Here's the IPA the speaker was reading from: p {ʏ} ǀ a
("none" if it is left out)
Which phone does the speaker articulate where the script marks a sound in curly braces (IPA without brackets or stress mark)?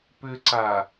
ʏ